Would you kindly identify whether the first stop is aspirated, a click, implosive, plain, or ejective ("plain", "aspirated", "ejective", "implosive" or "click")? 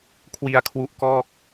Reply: aspirated